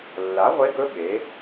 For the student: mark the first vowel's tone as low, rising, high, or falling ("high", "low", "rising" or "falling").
rising